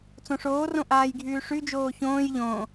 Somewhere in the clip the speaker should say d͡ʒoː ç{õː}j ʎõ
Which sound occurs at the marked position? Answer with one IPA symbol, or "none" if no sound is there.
õː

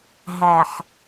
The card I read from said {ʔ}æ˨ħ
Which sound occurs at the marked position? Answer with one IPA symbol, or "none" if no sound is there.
ɦ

